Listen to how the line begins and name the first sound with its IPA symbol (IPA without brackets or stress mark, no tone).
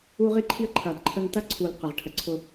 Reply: u